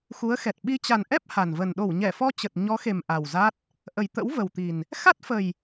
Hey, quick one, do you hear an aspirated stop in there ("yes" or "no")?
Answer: no